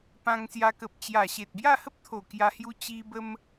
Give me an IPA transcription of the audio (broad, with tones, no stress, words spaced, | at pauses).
pã˧ŋsja˧kə˨p̚t͡ɕja˨˩ ɕe˨t̚bja˥˧hə˦p̚t̪ʰo˨˩ kja˧hju˧ t͡ɕi˧bə˧m